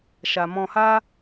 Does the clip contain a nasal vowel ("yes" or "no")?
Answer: yes